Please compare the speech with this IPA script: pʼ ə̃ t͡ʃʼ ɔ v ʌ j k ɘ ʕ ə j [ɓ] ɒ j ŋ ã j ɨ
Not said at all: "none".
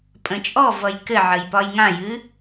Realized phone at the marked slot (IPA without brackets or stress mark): p